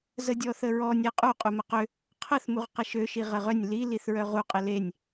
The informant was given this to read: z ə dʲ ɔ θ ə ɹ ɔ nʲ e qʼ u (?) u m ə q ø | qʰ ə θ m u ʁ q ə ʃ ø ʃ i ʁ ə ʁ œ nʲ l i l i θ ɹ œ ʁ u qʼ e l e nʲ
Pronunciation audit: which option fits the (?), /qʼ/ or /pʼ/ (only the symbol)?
qʼ